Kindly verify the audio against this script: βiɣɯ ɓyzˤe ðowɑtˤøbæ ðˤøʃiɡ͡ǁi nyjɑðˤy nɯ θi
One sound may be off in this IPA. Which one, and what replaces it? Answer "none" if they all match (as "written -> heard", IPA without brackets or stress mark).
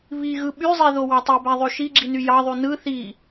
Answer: none